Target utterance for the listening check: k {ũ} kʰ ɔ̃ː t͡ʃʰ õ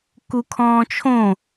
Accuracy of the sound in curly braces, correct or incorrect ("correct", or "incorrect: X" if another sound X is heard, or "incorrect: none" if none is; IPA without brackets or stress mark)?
incorrect: u